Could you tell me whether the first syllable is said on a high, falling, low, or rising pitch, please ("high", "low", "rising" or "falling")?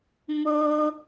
low